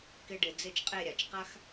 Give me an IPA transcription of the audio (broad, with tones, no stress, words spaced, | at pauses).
kɪ˥ɖɪ˧ d͡ze˥˧t͡ʃqʼe˥˧ɾʲa˩˧t͡ʃ qa˥x